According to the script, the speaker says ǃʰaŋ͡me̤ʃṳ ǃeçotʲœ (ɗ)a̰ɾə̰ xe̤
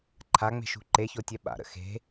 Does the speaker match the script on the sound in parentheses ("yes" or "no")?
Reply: no